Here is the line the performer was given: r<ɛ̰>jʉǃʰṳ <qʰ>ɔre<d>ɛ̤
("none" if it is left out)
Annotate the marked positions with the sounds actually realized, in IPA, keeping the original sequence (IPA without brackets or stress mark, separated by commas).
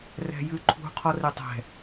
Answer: ɛ̤, qʰ, tˤ